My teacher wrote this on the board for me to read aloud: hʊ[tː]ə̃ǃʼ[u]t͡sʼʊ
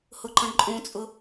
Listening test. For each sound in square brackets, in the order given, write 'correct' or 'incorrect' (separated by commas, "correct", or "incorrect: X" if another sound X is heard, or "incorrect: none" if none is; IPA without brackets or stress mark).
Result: incorrect: ǃ, incorrect: ũ